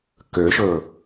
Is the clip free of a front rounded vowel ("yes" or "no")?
no